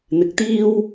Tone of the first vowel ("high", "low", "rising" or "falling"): low